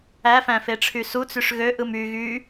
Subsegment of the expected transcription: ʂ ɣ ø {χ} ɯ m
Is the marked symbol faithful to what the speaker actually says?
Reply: no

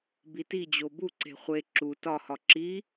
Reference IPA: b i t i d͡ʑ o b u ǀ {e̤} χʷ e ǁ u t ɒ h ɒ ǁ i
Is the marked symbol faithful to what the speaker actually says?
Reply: yes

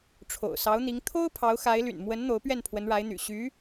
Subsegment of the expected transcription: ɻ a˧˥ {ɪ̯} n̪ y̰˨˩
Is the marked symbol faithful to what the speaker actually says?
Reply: yes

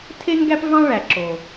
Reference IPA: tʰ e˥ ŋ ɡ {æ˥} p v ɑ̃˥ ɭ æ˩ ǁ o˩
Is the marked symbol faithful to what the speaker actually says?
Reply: yes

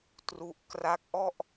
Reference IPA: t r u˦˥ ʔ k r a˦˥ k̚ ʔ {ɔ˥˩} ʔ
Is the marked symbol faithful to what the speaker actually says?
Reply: yes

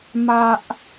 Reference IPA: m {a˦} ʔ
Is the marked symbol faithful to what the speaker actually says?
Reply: yes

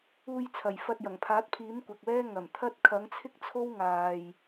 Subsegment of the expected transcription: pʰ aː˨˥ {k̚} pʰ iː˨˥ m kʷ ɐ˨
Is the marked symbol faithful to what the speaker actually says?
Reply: no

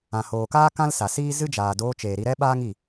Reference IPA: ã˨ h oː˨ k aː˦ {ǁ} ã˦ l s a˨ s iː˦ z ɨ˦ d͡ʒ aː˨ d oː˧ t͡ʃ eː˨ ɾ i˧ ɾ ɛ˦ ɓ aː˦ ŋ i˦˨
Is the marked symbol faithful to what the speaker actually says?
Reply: no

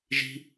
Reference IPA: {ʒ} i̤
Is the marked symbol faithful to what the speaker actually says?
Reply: yes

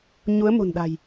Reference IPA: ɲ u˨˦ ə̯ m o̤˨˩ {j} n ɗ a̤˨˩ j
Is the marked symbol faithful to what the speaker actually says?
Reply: no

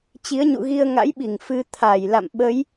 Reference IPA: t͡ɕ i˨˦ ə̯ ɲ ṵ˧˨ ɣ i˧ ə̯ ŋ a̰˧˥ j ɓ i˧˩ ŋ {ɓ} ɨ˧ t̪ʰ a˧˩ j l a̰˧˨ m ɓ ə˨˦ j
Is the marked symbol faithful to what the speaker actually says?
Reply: no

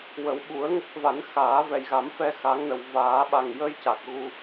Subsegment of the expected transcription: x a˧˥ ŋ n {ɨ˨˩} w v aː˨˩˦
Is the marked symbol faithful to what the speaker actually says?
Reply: no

